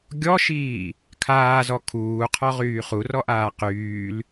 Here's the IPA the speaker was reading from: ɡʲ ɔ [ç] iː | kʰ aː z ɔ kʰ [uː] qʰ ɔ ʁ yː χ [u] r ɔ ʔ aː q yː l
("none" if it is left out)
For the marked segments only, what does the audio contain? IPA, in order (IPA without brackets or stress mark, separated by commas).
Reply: ʃ, uː, u